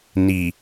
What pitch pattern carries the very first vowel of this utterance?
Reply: low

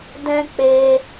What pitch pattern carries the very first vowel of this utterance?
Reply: high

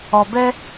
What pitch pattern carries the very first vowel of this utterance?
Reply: low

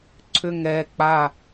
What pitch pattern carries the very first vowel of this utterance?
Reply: falling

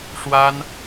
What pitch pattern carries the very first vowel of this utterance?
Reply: high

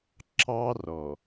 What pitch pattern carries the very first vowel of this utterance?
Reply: high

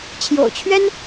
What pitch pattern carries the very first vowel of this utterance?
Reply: low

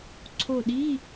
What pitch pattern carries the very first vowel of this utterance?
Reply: falling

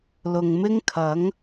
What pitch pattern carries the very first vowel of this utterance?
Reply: low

